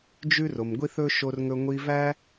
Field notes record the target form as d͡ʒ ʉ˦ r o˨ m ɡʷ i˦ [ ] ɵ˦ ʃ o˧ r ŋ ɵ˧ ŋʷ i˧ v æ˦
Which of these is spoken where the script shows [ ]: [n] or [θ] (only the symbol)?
θ